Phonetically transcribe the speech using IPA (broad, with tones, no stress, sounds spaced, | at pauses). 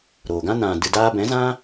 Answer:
ɾ oː˨ ɡ ã˦ n ã˨ d ɨ˨ d aː˧ b ɛ̃˨˦ z ã˦